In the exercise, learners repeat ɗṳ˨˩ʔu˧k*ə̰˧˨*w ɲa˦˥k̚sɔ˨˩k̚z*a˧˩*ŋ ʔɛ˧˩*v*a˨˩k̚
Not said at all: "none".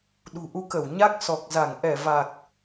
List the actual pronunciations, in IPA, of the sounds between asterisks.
ə˧˩, a˧˩, v

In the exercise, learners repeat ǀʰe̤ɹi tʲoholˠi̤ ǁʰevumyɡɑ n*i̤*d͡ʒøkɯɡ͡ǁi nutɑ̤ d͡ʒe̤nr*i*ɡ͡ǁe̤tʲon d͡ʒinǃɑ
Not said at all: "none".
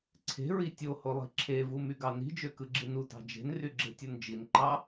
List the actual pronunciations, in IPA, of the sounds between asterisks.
i̤, y

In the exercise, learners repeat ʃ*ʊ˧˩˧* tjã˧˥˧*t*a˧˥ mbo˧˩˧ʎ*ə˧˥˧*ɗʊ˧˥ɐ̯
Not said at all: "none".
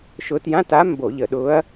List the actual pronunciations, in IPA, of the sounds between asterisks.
ʊ˧˥, t, ə˧˩˧

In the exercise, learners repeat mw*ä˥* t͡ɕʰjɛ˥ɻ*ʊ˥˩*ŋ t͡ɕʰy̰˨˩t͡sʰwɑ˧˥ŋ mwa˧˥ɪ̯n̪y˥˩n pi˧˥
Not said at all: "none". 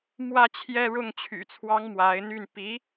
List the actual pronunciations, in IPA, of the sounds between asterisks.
ä˥, ʊ˥˩

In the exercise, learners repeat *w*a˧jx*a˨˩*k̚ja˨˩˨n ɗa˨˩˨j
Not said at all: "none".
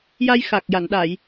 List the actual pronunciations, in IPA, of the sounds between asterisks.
j, a˨˩

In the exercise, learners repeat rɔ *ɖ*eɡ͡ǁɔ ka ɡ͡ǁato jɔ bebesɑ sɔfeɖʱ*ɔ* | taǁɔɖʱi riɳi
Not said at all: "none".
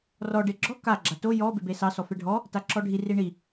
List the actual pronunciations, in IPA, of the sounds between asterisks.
ɖ, ɔ

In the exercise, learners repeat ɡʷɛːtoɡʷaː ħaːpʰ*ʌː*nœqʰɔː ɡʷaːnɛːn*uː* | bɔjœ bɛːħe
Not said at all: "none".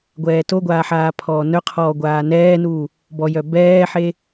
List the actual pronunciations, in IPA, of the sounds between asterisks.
ɔː, uː

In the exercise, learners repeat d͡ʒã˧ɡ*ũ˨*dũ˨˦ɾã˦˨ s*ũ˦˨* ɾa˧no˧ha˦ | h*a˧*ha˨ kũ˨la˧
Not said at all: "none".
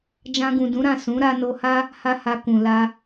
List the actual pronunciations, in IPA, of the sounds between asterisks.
ũ˨, ũ˨˦, a˧

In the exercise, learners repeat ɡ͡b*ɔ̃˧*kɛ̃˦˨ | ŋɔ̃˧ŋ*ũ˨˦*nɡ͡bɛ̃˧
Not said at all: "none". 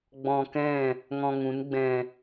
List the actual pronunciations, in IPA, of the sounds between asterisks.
ɔ̃˧, ũ˨˦

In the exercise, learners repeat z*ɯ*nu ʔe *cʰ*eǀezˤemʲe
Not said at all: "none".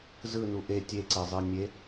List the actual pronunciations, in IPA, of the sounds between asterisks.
ɯ, tʲ

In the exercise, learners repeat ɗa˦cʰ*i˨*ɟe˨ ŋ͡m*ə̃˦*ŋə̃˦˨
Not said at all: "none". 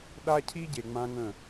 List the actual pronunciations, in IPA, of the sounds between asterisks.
i˦, ã˦

